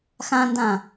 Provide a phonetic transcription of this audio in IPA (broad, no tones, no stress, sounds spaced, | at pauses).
x ã n d ã